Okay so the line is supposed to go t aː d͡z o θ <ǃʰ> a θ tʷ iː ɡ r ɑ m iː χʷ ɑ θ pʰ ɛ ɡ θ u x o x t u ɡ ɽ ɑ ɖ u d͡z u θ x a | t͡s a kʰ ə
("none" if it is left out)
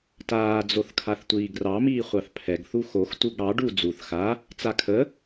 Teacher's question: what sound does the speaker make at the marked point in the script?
kʰ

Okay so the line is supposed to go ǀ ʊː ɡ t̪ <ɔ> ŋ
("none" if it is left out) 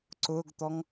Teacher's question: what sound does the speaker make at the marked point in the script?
ɔ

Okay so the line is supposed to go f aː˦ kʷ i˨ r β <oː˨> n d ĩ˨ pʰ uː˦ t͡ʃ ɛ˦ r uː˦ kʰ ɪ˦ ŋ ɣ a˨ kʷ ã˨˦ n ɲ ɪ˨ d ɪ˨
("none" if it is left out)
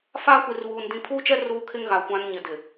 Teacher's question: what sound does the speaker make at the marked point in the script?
uː˨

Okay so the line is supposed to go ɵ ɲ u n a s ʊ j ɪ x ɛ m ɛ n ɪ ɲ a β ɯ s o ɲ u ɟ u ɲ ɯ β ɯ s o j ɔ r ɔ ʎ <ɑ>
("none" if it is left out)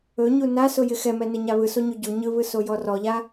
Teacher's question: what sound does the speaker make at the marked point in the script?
a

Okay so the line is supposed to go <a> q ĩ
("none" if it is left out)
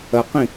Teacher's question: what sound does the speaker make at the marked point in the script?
ɐ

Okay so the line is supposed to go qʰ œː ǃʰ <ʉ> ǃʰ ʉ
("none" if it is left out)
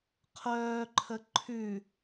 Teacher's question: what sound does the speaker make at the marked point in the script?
ə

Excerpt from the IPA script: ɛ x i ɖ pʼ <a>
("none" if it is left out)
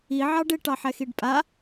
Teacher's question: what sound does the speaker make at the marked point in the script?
a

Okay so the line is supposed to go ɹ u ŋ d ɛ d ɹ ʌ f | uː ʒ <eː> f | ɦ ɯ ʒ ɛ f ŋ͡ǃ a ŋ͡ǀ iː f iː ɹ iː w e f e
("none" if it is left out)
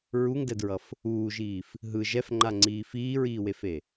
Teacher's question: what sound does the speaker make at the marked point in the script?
iː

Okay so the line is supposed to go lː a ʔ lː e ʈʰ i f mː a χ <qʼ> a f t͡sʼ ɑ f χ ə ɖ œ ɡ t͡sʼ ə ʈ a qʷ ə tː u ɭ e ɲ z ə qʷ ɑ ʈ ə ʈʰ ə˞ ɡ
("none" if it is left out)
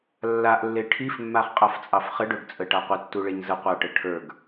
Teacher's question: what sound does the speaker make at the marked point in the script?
qʼ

